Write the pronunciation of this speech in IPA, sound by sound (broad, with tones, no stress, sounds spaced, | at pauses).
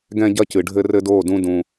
ɡ ɛ̃˦ ɟ ɐ˦ c ɨ˨ ɖʱ ɘ˦ r ɘ˦ d oː˦˨ d ũ˦ d ũ˦